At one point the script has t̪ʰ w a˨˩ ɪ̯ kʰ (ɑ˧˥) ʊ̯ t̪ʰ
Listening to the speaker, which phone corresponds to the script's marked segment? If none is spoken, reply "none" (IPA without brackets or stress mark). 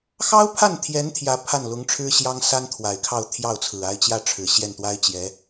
ɑ˥˧